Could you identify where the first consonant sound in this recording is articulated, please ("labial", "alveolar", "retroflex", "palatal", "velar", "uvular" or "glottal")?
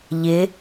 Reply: palatal